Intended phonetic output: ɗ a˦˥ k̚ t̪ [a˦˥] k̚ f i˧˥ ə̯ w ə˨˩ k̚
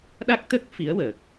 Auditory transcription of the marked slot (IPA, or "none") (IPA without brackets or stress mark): ə˦˥